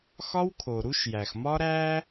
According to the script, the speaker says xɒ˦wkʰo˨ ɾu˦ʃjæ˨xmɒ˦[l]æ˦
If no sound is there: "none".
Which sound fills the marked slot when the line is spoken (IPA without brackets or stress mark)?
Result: ɾ